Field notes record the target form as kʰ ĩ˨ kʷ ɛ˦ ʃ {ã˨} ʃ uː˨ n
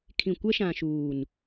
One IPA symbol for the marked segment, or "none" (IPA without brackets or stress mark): ã˨